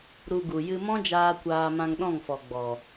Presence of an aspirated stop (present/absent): absent